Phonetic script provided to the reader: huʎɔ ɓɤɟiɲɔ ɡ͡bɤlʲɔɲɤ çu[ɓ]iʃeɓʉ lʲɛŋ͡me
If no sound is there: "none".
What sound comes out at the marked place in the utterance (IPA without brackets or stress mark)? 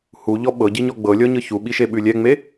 ɓ